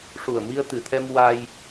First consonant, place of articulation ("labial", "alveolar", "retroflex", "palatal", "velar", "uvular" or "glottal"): retroflex